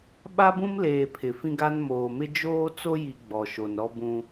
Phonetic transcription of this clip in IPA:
ɓ a˦ b ũ˦ m l eː˨ pʰ ɪ˨ f ĩ˦ ɡ a˦ n m oː˨ m ɪ˦ d͡ʒ oː˦ t͡s o˦ j i˨ ɡ͡b ɔ˨ ʃ o˨ n ɾ ɔ˦ b ũ˦

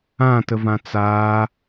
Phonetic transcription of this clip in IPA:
ã t ə v ã t͡s aː

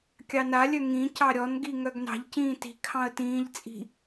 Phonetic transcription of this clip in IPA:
kʲ ɑ n a lʲ œ ŋ ĩ c ɑ ɾʲ ɔ n ɡ i ŋ œ ɡ n ɑ̤ ʎ c ĩː t i̤ kʰ ɑ̃ ə̯ t ĩː ʎ t͡sʼ i̤

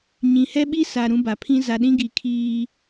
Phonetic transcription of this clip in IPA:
ɲ ĩ˨ h ɛ˦ ɓ i˦ s a˨ ɾ ũ˦ b a˨ pʰ ĩ˦ z a˨ ɗ ĩ˦ ɡ i˨ kʰ iː˦

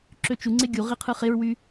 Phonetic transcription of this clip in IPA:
ǁ ø t͡ʃ u ŋ͡ǀ e ɡʲ u ʁ i qʰ ɯ χ e ɹ w y

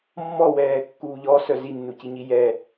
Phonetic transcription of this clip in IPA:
mː ɔ w ɛː kː uː ʎ ɔ s œ z i nː u c i ɲ i j ɛ

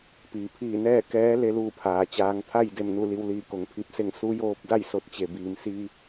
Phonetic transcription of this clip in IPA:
p iː˩ pʰ iː˧˩ n ɛː˥˨ k ɛː˧˥ l e˧ l uː˥˨ pʰ aː˩ t͡ɕ aː˩˧ ŋ t̪ʰ a˥˨ j d e˥˨ m n u˥˨ l i˧ w l iː˧˩ k o˩˧ ŋ pʰ i˧˩ p̚ s e˥˨ ŋ s u˧˥ j oː˧ p̚ d a˥˨ j s o˧˥ t̚ t͡ɕ e˩ b iː˩ m s iː˧

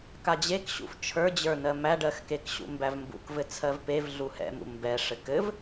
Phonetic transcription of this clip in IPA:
k a d͡ʑ e k ɕ ṵ f t͡ʃʰ ə˞ d͡ʑ ə˞ n ɜ m æ ɖ ɜ x k e k ɕ ṵ m b æ v m b ṵ k v ɘ t͡sʰ ɜ v p e v ɮ u h ɛ̰ m ṵ m b ɛ ʂ ɘ k ɘ v

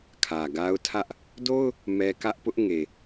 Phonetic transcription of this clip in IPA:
kʰ ä˨ ɡ a˦ ʊ̯ tʰ ä˦ ʔ | d o˦ ʊ̯ | m ɛ˦ k ä˦ ʔ p ʊ˦ ʔ ŋ e˨

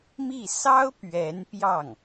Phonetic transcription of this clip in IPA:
m i˥˩ s ɑ˥ ʊ̯ p ɥ ɛ˧˥ n p j ɑ˥˩ ŋ

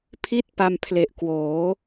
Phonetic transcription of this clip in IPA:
pʰ i˥˩ t̚ p a˧ m pʰ l e˨˩ ʔ k w oː˩˦

